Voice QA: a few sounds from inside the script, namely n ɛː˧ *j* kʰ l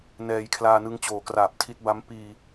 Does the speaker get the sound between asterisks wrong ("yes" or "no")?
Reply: no